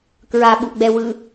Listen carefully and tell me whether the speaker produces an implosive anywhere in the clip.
yes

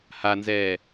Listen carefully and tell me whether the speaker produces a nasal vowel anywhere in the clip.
no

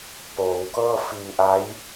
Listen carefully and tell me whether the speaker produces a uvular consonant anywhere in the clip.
no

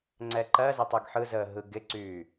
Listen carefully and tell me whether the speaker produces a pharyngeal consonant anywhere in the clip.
yes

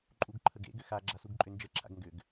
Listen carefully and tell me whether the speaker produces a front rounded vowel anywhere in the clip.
yes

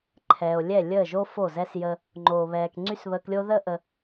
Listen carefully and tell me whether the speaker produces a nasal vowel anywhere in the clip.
no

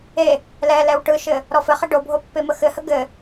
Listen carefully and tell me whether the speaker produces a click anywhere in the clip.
no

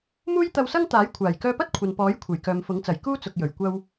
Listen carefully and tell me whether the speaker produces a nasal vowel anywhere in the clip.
no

